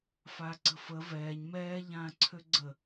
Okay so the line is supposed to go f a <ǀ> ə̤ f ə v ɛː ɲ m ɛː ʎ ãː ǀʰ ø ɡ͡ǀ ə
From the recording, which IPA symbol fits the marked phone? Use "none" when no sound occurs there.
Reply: ǀ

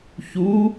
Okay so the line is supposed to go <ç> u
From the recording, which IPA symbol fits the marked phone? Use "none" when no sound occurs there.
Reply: ç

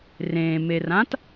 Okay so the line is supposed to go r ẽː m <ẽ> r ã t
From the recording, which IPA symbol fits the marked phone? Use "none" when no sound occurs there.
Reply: e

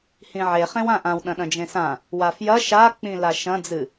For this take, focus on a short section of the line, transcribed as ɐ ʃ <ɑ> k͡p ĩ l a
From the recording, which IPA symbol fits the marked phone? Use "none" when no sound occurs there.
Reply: a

